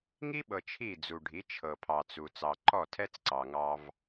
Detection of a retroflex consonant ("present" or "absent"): present